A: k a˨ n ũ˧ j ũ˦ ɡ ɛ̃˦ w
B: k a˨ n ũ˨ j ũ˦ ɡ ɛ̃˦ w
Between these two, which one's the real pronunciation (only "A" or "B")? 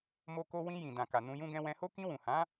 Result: A